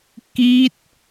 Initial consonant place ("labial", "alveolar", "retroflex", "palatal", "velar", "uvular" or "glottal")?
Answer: velar